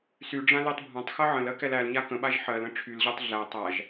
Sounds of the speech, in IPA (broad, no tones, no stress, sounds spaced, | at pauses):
s y ɖ͡ʐ ã l e tˤ bʱ ã tˤ x ɜ ʕ ə̃ l ɜ k ɛ l æ l ɲ a k ə̃ ɓ a ʒ ħ ɜ l ə̃ ʈ͡ʂʰ y l ʑ ɜ tˤ ɮ æ tˤ a ʒ